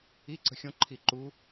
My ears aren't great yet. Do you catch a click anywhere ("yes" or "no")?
yes